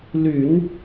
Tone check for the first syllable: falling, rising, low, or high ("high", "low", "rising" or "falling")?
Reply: low